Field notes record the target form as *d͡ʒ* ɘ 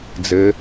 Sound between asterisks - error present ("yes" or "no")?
yes